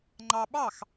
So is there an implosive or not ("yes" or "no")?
yes